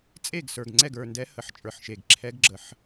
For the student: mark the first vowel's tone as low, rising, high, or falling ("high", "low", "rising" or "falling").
falling